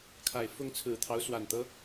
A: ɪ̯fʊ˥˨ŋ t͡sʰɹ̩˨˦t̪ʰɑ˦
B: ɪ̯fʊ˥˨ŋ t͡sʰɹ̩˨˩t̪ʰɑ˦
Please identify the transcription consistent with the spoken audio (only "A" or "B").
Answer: B